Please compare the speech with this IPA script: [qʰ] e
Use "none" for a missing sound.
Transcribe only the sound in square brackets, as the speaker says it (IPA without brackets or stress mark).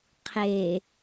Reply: qʰ